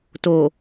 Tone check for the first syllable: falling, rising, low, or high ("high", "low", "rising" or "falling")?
low